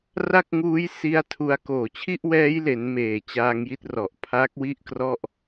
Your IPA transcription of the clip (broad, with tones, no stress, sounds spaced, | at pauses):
r a˥˩ k̚ ŋ uː˦˥ j s i˦˥ a̯ tʰ u˧ a̯ k oː˨˩ t͡ɕʰ i˥˩ ʔ w ɛː˦˥ j l e˩˦ n m eː˨˩ t͡ɕ aː˧ ŋ j i˥˩ t̚ r ɔ˨˩ ʔ pʰ a˦˥ k̚ w i˥˩ ʔ k r ɔ˥˩ ʔ